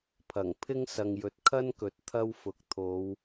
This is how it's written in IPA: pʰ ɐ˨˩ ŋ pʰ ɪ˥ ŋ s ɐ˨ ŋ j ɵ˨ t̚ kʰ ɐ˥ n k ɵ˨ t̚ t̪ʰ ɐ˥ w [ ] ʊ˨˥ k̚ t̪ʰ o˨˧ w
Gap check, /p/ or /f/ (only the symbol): f